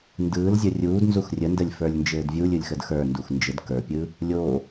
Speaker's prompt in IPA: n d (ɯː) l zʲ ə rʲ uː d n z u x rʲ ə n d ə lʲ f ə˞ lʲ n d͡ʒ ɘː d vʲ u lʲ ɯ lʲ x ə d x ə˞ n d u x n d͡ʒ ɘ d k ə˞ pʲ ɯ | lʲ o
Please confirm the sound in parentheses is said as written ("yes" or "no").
yes